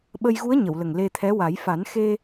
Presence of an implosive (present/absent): present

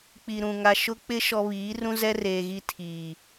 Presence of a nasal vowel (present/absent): present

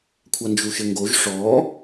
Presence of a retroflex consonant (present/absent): present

